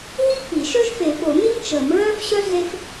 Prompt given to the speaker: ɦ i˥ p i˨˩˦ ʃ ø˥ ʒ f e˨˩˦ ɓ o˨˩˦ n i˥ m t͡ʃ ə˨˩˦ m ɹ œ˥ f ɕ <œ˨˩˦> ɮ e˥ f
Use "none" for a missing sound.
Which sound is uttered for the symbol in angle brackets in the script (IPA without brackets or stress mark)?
œ˥